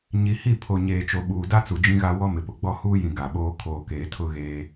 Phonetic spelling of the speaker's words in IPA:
ɲ i˨ h i˦˨ pʰ o˨ ɲ eː˨ t͡ʃ o˨ ɓ uː˨ d a˦ t͡s u˨ d͡ʒ ĩ˦ ɣ a˦ w ɔ˦ m ɪ˨ p ʊ˨ ɡ͡b ɔ˦ h uː˦ j ĩ˨ ɡ a˨ ɓ oː˦ kʰ oː˨ k eː˨ tʰ ʊ˦ ɣ eː˦

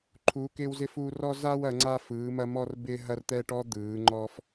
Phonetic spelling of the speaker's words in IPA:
ǃʰ uː˨˥ k ɪː˥ w z ɪ˥ f uː˥ r ɔ˥ z aː˥ w ɐ˨˥ ŋ͡ǀ a˥ f ɯː˨˥ m ɐ˥ m ɔ˥ r b ɪː˥ ɦ ɐ˥ r t̪ ɛː˥ ʈ ɔ˥ d̪ ɯː˨˥ ŋ͡ǃ ɔ˥ f

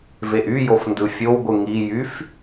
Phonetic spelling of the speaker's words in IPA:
v e ʔ y j o f n d ɯ fʲ o w ɡʷ ɯ ŋ i j y f

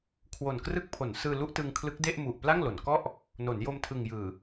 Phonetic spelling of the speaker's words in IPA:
kʰ w o˨˩ n k r ɯ˦˥ k̚ pʰ o˩˦ n s ɯː˧ l u˥˩ ʔ t ɯ˧ ŋ kʰ l ɯ˦˥ k̚ d e˥˩ ʔ m u˨˩ ʔ p l a˥˩ ŋ l o˩˦ n k ɔ˥˩ ʔ | n o˩˦ n j o˧ m tʰ ɯ˨˩ ŋ j ɯː˨˩

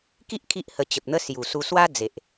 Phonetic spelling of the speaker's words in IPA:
k i˦ ʔ kʰ i˦ ʔ h ə˧ t͡ɕ ə˨ p̚ n̪ ə˦ s j u˨˩ s u˧ s w a˦ d͡z e˨ ʔ

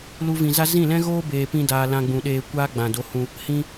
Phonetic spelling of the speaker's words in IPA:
l u˦ v ĩ˧ z a˦ z ĩ˦˨ l ɛ̃˦ ɣ oː˦ b eː˨ p ĩ˧ d aː˧ l ã˧ ɡ͡b ũ˨ ɗ eː˧ kʷ aː˧ ɡ͡b ã˨ d o˨˦ h ũ˧ | h ĩ˧

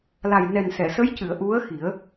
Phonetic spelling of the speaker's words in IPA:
l a˨˩ j n ɛ˨˩ n s ɛ˨˩˨ s ə˧˥ j c ɨ˨˩˨ ə̯ ʔ u˧˥ ə̯ x i˨˩˦ ə̯

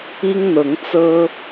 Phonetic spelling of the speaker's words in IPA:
i˦ ŋ n̪ ɤ˨˦ ŋ t͡s ɤ˦

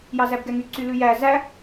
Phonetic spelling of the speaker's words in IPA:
j ɑ z æ b ɡ ɛ ŋ y ǀ y l ʉ j æ z æ

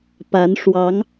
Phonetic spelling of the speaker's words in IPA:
p a˧˥ n ʂ w ɑ˧˥ ŋ

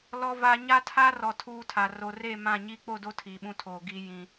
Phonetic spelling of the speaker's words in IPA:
l ɔ˨ v a˨ ɲ a˦ tʰ aː˦ r ɔ˨ tʰ uː˦ tʰ a˨ r o˨ r e˦˨ m ã˦˨ ɲ i˦ k͡p o˦˨ d o˦ tʰ iː˨ ɓ ũ˦ tʰ oː˨ ɡ i˦ j ĩ˦

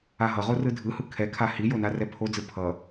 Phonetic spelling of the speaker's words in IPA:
a ɦ ʌ ʁ o r ɯ dʱ ɯ h ɯ kʰ ɛ kʰ a h i j o n a r ɛ pʰ o d͡z ɯ pʰ ʌ

